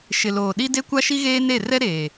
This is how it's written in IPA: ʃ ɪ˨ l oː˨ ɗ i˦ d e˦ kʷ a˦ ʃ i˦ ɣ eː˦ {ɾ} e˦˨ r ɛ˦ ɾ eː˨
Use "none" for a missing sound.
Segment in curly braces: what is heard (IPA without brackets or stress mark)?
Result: n